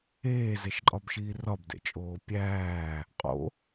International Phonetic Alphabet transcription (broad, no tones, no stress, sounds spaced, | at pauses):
eː z e ʃ ǃʼ ɒ b ʃ iː r ɒ b d ḛ t͡ʃʼ oː pʲ æː | qʼ o̰